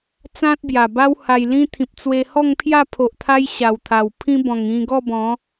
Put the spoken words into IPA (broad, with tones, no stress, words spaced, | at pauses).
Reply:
t͡sã˦t̚bja˨˩ba˦wha˧j lĩ˧t̪ʰĩ˨p̚ t͡swe˧hɔ˥˧ŋpʰja˥˧ pʰo˨ʔt̪ʰa˧j ɕa˨˩wt̪ʰa˨˩w pʰĩ˧bɔ̃˨˩ŋĩ˧ ɡɔ˥˧bɔ̃˨˦